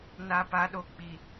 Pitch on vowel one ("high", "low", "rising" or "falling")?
low